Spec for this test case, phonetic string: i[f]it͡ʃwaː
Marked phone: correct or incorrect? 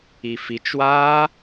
correct